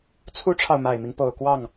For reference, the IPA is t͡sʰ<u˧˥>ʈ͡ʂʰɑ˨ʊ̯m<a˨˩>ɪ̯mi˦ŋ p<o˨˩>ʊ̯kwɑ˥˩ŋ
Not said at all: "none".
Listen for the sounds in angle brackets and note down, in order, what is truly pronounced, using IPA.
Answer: u˥, a˨˩, o˨˩

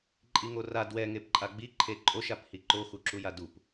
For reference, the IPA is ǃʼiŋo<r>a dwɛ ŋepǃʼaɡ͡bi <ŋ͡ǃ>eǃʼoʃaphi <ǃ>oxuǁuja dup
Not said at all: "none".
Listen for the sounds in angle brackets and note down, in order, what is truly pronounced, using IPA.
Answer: r, ǃʰ, ǃ

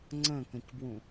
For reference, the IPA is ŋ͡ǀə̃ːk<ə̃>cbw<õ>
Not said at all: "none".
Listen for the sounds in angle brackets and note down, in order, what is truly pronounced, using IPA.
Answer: ə̃, ũ

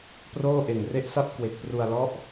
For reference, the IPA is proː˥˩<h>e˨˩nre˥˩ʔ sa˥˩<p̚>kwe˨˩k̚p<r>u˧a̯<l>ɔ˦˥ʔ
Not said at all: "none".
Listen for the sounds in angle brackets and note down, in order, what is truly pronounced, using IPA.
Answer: ʔ, p̚, r, l

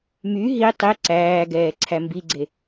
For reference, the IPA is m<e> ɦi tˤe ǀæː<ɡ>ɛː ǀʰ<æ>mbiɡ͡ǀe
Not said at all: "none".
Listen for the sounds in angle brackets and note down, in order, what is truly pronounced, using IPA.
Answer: y, ɡ, æ

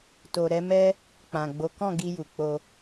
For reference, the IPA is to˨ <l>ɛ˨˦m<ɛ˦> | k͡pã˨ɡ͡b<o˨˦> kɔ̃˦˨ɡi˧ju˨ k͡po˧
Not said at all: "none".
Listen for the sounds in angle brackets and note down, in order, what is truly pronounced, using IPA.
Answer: ɾ, ɛ˦, o˨˦

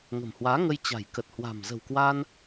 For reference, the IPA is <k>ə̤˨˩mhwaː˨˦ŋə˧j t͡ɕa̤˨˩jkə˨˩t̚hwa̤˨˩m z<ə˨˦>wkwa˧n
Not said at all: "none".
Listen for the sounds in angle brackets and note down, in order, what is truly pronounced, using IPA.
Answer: ŋ, ə̤˨˩

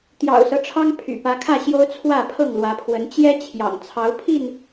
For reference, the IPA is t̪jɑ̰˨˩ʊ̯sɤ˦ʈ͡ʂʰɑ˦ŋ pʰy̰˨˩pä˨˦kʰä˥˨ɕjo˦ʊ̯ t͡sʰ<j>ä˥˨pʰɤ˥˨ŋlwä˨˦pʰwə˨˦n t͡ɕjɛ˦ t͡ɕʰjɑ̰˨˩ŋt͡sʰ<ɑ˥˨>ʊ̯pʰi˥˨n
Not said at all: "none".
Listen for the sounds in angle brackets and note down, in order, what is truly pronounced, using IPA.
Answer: w, ɑ˨˦

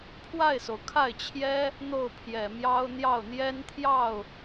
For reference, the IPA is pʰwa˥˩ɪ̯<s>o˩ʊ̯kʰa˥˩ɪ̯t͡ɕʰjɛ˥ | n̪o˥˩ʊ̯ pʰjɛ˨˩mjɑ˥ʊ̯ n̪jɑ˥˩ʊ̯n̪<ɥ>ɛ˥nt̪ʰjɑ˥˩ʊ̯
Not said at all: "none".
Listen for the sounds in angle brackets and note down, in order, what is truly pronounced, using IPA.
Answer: s, j

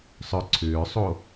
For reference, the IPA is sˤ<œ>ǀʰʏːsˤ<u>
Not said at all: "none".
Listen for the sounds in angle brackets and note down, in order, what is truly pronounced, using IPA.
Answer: œ, o

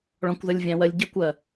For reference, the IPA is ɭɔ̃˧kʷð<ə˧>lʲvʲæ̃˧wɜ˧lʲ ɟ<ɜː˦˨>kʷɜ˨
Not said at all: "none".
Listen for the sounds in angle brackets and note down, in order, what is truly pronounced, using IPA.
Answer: ə˧, ɜ˦˨

